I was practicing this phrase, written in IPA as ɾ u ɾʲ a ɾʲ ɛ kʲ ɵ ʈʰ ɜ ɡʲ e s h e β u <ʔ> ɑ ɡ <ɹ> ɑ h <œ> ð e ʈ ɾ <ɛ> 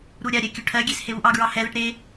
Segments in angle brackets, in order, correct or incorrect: correct, correct, incorrect: ɛ, incorrect: e

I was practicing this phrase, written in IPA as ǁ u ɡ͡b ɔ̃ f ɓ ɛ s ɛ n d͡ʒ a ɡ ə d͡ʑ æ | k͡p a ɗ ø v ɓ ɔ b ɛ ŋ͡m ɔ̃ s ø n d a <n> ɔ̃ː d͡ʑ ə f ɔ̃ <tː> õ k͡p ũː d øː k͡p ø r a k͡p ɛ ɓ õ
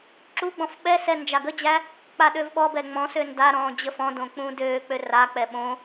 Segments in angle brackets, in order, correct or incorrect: incorrect: ɾ, incorrect: d

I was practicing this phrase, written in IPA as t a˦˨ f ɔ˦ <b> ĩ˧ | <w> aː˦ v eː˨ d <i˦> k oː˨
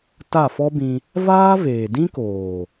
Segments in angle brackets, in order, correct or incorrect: correct, incorrect: v, incorrect: ĩ˦

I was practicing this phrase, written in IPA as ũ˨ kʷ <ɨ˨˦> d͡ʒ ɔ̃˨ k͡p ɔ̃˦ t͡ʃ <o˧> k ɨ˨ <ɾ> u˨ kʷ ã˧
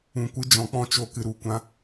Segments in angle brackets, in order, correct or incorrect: correct, incorrect: o˦˨, correct

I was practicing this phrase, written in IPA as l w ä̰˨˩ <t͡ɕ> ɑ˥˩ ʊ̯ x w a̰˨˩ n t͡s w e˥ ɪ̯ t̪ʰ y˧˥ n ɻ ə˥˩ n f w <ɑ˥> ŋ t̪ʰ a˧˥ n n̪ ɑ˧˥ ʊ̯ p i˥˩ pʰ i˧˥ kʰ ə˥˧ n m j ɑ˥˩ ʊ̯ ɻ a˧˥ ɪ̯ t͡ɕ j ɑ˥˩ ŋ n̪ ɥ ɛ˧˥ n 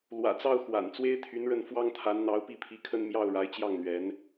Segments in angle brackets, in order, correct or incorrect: incorrect: t͡s, correct

